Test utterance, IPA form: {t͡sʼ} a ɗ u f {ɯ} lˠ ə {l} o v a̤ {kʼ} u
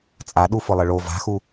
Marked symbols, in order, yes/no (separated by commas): yes, no, no, no